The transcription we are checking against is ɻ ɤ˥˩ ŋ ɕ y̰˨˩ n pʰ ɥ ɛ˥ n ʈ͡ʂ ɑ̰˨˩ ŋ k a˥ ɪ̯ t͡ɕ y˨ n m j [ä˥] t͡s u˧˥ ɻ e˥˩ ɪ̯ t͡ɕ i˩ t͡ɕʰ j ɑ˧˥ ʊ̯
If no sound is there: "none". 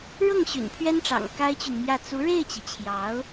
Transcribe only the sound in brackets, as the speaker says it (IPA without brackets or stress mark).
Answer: ä˥˩